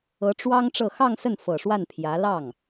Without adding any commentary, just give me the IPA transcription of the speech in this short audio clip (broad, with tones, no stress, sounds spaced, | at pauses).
ɤ˧˥ ʈ͡ʂ w ɑ˥ ŋ ʈ͡ʂ ɤ˥˧ x ɑ˥˧ ŋ s ə˥˩ n f ɤ˨˩ ʂ w a˥˩ n pʰ j ä˧˥ l ɑ˥˩ ŋ